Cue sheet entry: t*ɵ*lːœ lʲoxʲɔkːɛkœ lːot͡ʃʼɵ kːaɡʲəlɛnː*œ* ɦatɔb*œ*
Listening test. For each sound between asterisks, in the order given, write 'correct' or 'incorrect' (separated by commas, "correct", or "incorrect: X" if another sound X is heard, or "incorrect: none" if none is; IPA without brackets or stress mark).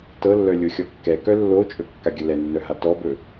incorrect: ɤ, correct, incorrect: ɵ